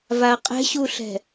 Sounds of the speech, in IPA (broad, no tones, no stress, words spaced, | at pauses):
vaɐ̯qʼɛ̤ɕuɬɛ̤